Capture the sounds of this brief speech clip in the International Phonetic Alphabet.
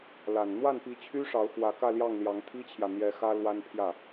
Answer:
l a˨˩ n n̪ w a˥˩ n p i˧˥ t͡ɕʰ y˥ ʂ ɑ˧˥ ʊ̯ x w ä˧˥ k ä˥˧ l j ɑ˥˩ ŋ l j ɑ˧˥ ŋ t̪ʰ i˥ t͡ɕʰ j ä˨ n̪ j ɛ˧˥ x ä˥ l w a˥ n pʰ j ä˥˩

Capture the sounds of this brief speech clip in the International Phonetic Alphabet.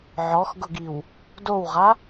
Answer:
ʕ ɔ x ɡ ʊ ɡ i w | d o w ʁ a

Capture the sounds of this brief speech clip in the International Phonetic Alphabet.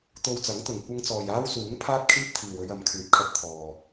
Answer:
t̪ o˧ w t͡s ɐ˨˥ ŋ t̪ ʊ˨ ŋ kʷ ɐ˧ ŋ t͡s ɔː˨ j aː˥ w s uː˨˥ ŋ pʰ aː˥ t̚ kʰ iː˥ p̚ t̪ʰ iː˨ w ɵ˧ ɥ ɐ˨˧ m kʰ yː˨ p̚ kʰ ɐ˧ t̚ t̪ʰ ɔː˨

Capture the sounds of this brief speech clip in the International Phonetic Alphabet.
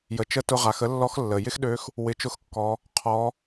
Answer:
j ə˩ t͡ʃ ə˧˥ t ʊ˧ ʁ a˩˧ x ə˧˥ lː ɔ˧˥ x lː ə˩ j ɪ˥ x ɗ ø˧˥ x | w ɪ˩˧ t͡ʃ ʊ˧˥ x kː ɔ˩˧ | qʰ ɔ˩˧

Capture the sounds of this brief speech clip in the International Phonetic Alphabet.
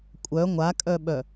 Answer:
kʷʼ œ ŋʷ a kʼ œ ɓ œ

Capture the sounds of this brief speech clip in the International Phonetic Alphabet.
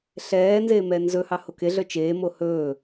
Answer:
ɬ ɛː n z eː m ɛː n z ɵ h ɑ h o k e ɮ œ t͡ʃ eː m o h ɵː

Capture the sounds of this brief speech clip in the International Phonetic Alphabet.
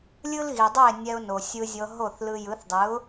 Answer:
lʲ ɯ˥ l ɣ i˩ dˤ ɯ˥˩ ɪ̯ nʲ ɛ˧ ʊ̯ n o˩ sʲ ɯ˧ zʲ ɤ˧ ɦ o˥˩ θ l ɯ˧ j ɯ˩˥ θ dˤ ɯ˩˥ ʊ̯

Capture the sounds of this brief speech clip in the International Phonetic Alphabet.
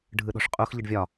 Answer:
ɖʱ ɯ ɗ ɔ̤ ʂ qʼ u x ʎ ɯ ɖ vʲ ɒ

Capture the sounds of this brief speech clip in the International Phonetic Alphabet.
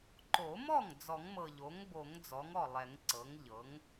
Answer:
ǃ o˨˩˦ m ɔ˥˩ ŋ d͡z ɔ˨˩˦ ŋ m ɤ˨˩ ʎ o˩˥ ŋ b o˨˩˦ ŋ d͡z ɔ˩˥ ŋ ɔ˥˩ lˠ ɛ˨˩˦ ŋ ǀ ɤ˩˥ ŋ ʎ ɤ˩˥ ŋ

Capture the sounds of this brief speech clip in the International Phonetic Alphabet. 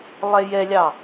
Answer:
lˠ ɛ j ɛ lʲ ɑ

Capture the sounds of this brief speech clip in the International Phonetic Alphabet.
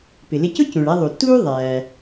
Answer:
p ɪ˩ l ɪ˧ c ʊ˥ c ũ˩ ɭ æ˧ ðˤ u˩ t uː˥ ðˤ æː˩

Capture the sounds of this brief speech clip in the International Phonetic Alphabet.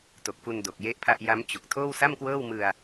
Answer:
t o˨˩ k̚ f u˧ n d o˨˩ k̚ j e˥˩ ʔ pʰ a˥˩ ʔ j a˦˥ m t͡ɕ u˨˩ k̚ tʰ oː˥˩ w s a˥˩ m k w ɤː˥˩ w m ɯ˧ a̯

